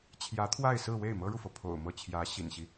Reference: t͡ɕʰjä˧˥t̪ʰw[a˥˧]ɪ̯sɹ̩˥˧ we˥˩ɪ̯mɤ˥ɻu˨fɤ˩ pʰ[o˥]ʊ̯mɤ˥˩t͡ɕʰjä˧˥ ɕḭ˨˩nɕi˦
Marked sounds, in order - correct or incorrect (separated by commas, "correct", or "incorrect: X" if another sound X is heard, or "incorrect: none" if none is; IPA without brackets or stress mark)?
correct, incorrect: o̰˨˩